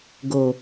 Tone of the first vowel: low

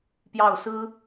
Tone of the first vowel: falling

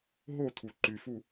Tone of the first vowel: falling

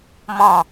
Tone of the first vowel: falling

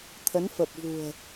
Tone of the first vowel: rising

